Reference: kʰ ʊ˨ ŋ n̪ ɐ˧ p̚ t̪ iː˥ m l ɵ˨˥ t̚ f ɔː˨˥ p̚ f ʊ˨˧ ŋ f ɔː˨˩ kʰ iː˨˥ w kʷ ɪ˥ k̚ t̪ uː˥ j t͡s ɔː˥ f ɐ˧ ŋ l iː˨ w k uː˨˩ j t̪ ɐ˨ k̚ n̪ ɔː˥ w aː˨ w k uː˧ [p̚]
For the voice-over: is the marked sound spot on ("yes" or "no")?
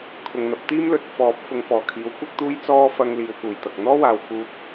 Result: yes